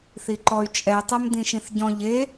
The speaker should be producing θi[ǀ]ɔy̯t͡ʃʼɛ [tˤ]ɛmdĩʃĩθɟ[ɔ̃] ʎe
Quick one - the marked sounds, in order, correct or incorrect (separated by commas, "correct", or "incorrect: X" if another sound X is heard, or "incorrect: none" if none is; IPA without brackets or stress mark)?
incorrect: ǃ, correct, correct